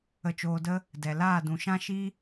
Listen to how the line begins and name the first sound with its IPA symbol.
ə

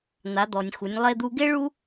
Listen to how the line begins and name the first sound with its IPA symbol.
n̪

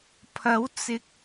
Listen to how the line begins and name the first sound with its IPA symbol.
pʰ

